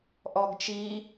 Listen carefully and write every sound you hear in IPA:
ʔ ɔ ɡ t͡ʃ i

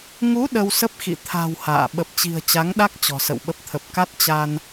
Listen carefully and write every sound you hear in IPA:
ŋ u˨˦ ɗ ə˧ w s ə˦˥ p̚ x ḭ˧˨ t̪ʰ a̤˨˩ w h a̰ː˧˨ ɓ ə˨˩ p̚ t͡ɕ i̤˨˩ ə̯ t͡ɕ a˨˦ ŋ ɗ a˦˥ k̚ t͡ɕ ɔ̤˨˩ s ə̰˧˨ w ɓ ə˦˥ p̚ t̪ʰ ə˨˩ p̚ k a˦˥ t̚ t͡ɕ a˧ n

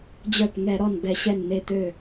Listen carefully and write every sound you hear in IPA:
d͡ʑ œ˧˩ p ŋ ɛ˧˩˧ ɾ ɔ˧˩ n b ɛ˧˩˧ ɕ ɛ˧˩ n n̪ e˧˩ t̪ ø˧˩

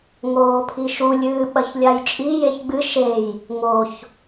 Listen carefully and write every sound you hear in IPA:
ŋ oː pʰ i ʃ u lʲ ɨː ɓ ɐ ç lʲ a j t͡ʃʼ i j e ç ɡ͡b ɨ ʃ e j | ŋ o ç

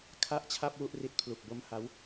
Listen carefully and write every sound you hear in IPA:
kʰ a˥˩ ʔ t͡ɕʰ a˥˩ p̚ w u˥˩ ʔ r i˦˥ t̚ pʰ l u˨˩ k̚ b o˦˥ m h a˦˥ w

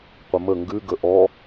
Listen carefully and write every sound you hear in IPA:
qʷ ə m ə ŋ ɡ ʉ ɡ ə ʔ ɔ

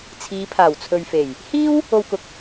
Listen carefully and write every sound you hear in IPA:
t͡sʰ iː˨˧ pʰ aː˨˩ w t͡sʰ ɵ˨ ɥ f e˨˩ j | h iː˥ w | o˧ w k ʊ˨ k̚

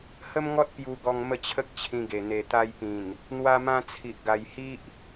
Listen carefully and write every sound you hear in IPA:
h ə˦ m ŋ ɔ˦ t̚ p j u˧ ɡ ɔ˧ ŋ m ə˥˧ t͡ɕʰ ə˦ k̚ t͡ɕʰ ĩ˧ ɡ e˨˩ n̪ e˨˩ t̪ a˧ j p ĩ˨˩ n | n̪ w a˧ m ã˧ t͡sʰ i˨ ʔ ɡ a˨˩ j h i˦ ʔ

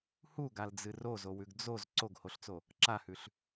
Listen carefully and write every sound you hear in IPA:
h u ɡ a l d͡z ɨ r o z o w ʉ ɡ d͡z o z ǀ o ɡ h o ɬ t͡s o | ǁ a h ʉ ɬ

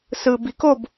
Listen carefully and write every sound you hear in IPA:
s ɯ b i k o b

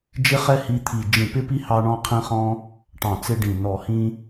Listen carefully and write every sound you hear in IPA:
d͡ʒ ɪ˥ χ ɛ˥ h i˥ t̪ʰ i˧˩ d͡ʒ ĩ˧˩ p ɪ˥ p i˥ h ɑ˥ ɳ ɔ̃˥ qʰ ĩ˥ χ ɔ̃˥ | ʈ ɑ̃˧˩ t͡s ɪ˥ ɖ ĩ˧˩ n ɔ˧˩ h ĩ˥

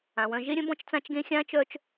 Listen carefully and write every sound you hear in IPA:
ã˨ w œ̃˧ ʒ e˦ ɾʲ œ̃˦ b ɔ̃˦ t͡ʃ t͡s ã˦ t͡ʃ ɡ ẽ˦ xʲ ã˦ t͡ʃ œ˦ t͡ʃ

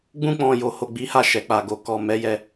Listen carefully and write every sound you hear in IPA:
ɡ͡b ũ˧ k͡p ɔ̃˨ j o˨ h o˨ ɡ͡b i˨˦ h a˦˨ ʃ ɛ˨ k͡p a˨ ɡ o˨ k ɔ˨ m ɛ˨˦ j ɛ˧

